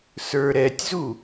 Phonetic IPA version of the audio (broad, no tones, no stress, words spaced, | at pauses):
sə˞ɾɛtʲzu